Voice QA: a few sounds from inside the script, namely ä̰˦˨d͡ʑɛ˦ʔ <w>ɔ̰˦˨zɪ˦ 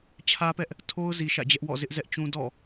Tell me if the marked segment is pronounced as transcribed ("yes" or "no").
yes